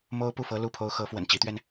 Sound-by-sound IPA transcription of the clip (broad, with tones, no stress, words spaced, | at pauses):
mo˥ʊ̯pu˥˩fɤ˥ lu˥˩pʰo˥ʊ̯ xɤ˧˥fwə̰˨˩n t͡ɕi˧˥t̪ɥɛ˧n